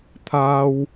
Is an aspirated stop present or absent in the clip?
present